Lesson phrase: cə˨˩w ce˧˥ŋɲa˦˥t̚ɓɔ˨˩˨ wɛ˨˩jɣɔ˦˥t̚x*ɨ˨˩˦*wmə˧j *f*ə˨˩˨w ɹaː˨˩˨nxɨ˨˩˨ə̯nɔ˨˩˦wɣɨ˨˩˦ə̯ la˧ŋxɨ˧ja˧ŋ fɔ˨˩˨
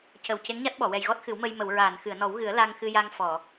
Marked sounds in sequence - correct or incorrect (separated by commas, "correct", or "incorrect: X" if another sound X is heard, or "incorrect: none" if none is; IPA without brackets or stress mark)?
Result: correct, incorrect: m